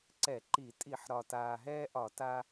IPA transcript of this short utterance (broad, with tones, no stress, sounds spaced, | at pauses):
ǀ ɛ˧˩˧ ǃ i˧˩˧ tʼ i˧˩˧ ħ ɾ ɒ˨˩ t aː˨˩ ɦ ɛː˦ ʔ ɒ˧˩˧ t a˦